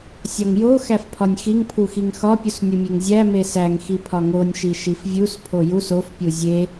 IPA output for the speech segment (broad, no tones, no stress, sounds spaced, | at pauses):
sʲ ɒ ŋ j o x æ f pʰ ɒ nʲ x i ŋ pʰ u x i ŋ x ɒ pʲ u s nʲ u mʲ e ŋ zʲ æ m e s æ ŋ x i pʰ ɒ ŋ o nʲ ʃ i ʃ i f vʲ u s pʰ o j u s o f pʲ u zʲ e